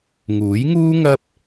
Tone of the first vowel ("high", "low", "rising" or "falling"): rising